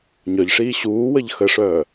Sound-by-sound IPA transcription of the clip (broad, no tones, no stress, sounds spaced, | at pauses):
ɲ œ ʎ ʂ iː ɕ uː w ə ʎ x ə ʂ œː